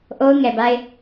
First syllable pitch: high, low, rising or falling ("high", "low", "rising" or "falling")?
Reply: high